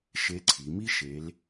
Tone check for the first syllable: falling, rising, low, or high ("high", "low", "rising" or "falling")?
rising